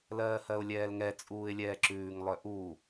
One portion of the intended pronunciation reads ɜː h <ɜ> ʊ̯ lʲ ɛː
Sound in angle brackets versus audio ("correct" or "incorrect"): correct